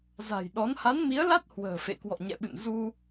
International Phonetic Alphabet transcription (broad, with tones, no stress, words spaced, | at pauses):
za̤˨˩jɗɔ˨˦n ha˨˦nmi˨˦ə̯la˦˥t̚ hwə̤ː˨˩fḛ˧˨ kwɔ̰˧˨ɲɛ̰˧˨ɓɨ̰˧˨n zu˧